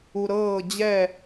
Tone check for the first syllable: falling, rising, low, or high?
low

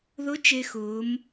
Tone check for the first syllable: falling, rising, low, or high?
rising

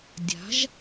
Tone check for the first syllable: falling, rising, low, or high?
rising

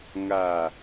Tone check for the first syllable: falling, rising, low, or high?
low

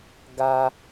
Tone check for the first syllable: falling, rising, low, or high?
high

